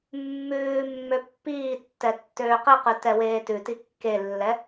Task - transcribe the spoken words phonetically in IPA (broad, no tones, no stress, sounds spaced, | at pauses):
mː ʉː mː ø pː iː tː ɛ tː øː q i q ʉ t ɛ w eː t ʉ t i kː e lː ɛ